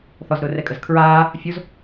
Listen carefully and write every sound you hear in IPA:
θɔzɾʊːrɛkʼəz kʰɹaː | fʲoz

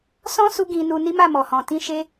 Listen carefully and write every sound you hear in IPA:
sɔ̃˦su˧ ɡĩ˧nu˧ni˦ma˦˨ mɔ˨hɔ̃˨tĩ˧ ʃe˦

